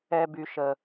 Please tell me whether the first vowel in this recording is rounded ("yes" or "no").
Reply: no